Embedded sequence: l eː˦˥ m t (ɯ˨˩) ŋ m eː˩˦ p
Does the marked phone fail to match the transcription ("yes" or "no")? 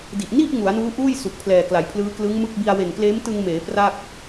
yes